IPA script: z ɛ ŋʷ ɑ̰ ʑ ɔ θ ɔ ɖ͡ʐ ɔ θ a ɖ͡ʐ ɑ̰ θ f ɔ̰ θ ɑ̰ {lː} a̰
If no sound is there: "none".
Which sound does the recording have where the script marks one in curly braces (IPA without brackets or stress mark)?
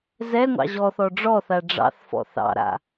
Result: ɾ